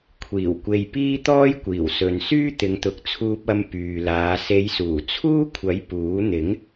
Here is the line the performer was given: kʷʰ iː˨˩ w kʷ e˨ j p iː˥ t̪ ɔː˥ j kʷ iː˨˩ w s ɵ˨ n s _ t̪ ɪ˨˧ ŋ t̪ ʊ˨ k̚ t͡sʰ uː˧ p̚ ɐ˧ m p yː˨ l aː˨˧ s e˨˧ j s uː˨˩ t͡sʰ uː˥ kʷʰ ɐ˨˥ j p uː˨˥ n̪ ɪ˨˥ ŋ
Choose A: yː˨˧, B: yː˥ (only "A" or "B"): B